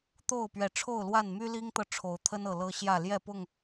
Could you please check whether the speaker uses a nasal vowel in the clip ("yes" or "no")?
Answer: no